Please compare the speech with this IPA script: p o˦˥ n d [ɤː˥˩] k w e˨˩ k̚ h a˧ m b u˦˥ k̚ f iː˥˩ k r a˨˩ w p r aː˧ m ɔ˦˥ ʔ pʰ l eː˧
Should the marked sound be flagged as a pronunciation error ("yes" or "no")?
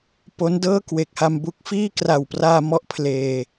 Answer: no